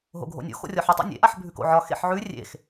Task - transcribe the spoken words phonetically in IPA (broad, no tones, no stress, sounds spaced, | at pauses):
ɦ o̰ ɡʱ o̰ nʲ o̰ x o̰ rʲ ɒ ħ e tˤ o̰ nʲ ḛ ʔ a ħ bʱ ʉ k o̰ ʕ ɒ x ḛ ħ ʕ ʉ rʲ ḛ x